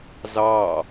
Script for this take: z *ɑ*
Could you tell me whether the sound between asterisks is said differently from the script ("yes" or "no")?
no